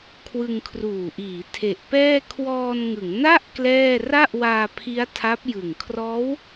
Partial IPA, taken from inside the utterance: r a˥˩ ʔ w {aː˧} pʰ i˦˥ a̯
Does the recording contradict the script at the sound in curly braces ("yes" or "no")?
no